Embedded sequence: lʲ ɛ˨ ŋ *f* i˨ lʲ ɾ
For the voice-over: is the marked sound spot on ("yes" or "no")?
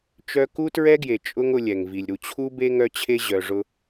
no